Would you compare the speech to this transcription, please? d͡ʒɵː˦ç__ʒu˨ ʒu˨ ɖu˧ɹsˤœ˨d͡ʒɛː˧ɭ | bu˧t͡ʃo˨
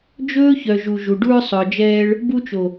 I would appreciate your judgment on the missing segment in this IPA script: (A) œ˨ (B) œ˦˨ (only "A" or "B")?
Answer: A